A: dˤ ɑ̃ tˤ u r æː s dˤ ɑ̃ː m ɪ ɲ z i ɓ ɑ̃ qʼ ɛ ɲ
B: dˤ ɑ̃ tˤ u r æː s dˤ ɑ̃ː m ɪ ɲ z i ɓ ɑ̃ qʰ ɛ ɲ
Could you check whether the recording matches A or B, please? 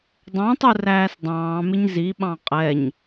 A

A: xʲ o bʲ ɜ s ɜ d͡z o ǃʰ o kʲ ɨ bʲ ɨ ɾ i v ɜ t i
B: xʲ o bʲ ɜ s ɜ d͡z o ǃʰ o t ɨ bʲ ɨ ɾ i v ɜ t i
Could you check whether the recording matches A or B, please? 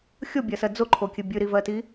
A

